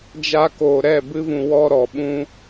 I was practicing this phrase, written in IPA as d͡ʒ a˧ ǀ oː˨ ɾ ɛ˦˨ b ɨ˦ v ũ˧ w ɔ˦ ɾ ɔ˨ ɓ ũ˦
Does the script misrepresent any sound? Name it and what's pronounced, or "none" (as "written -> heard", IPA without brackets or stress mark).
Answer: ǀ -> k